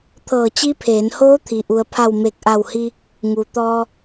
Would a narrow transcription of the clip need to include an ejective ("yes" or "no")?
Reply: no